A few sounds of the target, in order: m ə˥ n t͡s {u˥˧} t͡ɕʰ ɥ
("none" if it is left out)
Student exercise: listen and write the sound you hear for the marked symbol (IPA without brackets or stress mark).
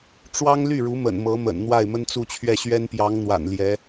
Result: u˥˧